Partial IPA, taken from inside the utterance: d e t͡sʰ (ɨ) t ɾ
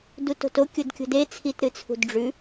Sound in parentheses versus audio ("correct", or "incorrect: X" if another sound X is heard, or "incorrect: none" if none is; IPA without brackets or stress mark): incorrect: i